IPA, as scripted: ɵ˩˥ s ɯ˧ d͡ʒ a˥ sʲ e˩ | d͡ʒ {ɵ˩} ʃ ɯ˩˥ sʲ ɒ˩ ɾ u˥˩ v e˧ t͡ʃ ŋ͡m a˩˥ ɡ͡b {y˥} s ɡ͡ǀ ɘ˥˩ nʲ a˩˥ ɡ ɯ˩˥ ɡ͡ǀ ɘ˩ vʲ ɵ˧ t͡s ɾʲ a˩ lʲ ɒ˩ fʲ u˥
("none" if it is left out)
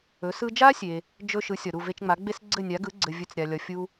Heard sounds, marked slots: ɵ˥, e˥

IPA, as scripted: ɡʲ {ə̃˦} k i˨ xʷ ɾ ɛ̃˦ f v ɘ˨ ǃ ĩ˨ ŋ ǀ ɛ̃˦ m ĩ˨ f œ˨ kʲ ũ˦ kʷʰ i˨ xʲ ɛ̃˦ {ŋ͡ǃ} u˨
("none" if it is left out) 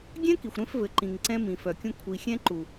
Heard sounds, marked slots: ɛ̃˦, ǃ

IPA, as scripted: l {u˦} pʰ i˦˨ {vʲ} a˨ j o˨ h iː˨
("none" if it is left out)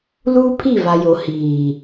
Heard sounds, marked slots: uː˦, v

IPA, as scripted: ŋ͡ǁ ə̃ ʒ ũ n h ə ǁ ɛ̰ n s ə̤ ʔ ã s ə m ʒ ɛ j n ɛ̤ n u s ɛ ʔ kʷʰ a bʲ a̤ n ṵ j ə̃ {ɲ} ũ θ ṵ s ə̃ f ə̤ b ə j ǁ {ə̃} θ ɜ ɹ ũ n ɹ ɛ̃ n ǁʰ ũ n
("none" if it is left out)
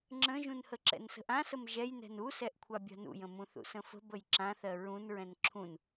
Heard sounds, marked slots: m, ã

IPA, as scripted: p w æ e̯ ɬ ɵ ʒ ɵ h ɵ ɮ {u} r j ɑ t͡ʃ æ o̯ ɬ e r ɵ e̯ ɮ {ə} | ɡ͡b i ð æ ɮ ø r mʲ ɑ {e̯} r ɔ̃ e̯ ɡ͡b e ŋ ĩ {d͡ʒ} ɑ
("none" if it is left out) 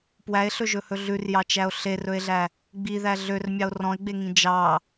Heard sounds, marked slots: ʉ, æ, o̯, d͡ʒ

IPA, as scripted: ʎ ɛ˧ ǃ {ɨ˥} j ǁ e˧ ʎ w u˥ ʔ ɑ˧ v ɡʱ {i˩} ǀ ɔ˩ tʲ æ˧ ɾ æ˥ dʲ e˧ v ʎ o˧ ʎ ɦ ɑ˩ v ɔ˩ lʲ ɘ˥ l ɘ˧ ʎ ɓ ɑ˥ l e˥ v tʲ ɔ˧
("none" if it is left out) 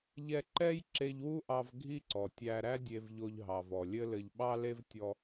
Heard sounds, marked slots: ɛ˥, i˥

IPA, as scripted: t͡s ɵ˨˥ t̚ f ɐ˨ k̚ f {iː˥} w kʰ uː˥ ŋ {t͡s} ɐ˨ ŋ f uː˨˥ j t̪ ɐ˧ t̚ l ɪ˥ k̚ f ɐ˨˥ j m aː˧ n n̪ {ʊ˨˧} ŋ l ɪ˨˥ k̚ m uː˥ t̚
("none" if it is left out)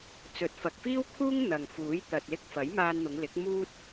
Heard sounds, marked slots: iː˥, n̪, ʊ˨˧

